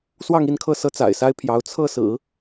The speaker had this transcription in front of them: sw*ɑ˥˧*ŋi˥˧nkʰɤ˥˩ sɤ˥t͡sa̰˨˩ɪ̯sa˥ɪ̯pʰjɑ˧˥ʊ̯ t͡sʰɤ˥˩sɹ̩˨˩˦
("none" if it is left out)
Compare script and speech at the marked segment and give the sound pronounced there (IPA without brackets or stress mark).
ɑ˥˧